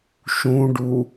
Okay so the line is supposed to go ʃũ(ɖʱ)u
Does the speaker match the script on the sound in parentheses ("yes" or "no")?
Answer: no